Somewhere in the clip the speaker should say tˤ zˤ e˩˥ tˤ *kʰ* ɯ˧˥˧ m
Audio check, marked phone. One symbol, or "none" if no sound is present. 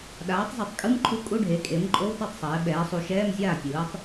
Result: kʼ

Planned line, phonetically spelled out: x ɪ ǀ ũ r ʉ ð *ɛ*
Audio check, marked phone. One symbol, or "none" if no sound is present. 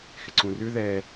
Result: ɛ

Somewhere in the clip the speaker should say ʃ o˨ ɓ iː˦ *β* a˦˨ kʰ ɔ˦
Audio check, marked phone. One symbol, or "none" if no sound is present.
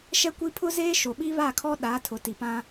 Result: β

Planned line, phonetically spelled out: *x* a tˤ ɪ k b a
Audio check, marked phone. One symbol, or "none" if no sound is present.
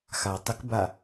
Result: x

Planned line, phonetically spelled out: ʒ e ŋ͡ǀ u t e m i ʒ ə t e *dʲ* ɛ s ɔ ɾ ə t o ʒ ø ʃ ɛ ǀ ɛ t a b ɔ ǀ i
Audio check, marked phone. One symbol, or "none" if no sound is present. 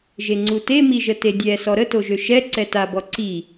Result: dʲ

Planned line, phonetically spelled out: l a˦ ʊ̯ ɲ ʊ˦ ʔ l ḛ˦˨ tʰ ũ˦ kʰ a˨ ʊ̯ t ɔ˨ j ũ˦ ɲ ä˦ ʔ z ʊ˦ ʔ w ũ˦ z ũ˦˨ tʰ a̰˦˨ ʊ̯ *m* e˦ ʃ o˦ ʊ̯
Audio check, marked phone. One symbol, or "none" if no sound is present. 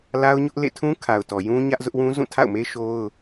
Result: m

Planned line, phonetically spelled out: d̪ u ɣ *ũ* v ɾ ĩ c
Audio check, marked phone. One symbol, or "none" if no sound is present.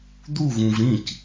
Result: ũ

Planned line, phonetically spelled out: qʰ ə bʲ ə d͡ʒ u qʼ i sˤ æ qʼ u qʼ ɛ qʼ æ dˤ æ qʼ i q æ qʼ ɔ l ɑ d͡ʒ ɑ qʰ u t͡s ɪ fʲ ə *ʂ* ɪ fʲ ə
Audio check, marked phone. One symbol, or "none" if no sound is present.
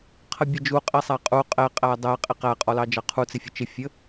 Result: t͡ʃ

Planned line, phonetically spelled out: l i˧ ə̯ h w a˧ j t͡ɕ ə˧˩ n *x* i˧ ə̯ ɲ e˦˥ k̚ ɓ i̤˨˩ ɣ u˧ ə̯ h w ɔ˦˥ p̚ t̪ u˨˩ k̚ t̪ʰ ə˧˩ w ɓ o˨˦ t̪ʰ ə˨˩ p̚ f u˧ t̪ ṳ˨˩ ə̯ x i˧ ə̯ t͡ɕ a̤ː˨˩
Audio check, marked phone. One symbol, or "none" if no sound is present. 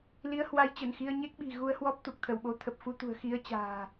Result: x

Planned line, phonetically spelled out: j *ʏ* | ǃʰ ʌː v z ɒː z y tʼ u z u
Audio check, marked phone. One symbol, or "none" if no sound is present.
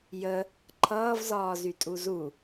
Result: ə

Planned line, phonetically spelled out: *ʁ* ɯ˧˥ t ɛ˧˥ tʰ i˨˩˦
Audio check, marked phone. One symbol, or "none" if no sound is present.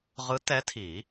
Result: ʁ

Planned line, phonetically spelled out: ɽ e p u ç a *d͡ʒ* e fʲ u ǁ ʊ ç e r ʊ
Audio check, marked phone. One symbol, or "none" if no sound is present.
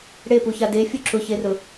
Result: d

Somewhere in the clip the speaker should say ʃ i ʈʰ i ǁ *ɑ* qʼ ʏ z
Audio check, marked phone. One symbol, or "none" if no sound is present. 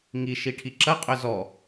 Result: ɐ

